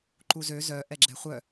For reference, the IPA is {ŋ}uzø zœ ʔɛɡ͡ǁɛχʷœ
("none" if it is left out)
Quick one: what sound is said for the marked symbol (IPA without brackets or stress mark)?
ǃ